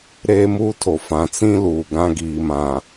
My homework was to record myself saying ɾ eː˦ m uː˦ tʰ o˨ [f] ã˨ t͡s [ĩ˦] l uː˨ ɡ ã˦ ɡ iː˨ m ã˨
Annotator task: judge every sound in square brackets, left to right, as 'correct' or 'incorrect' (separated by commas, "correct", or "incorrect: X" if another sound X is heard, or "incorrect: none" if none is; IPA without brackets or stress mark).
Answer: correct, correct